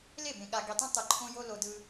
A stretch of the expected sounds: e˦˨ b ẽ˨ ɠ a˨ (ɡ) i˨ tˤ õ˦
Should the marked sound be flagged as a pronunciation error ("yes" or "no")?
no